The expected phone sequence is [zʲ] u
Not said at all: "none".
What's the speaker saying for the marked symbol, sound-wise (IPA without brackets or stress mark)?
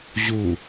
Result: ʑ